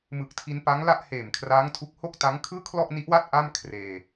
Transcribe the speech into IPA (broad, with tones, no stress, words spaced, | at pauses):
mɯ˨˩k̚tʰi˧npa˦˥ŋ la˥˩ʔheː˨˩mkʰraː˦˥ŋtʰu˦˥k̚ ho˥˩k̚ta˦˥ŋ kʰɯː˥˩kʰlɔ˥˩ʔni˦˥ʔwa˥˩t̚ ʔa˥˩mkʰreː˧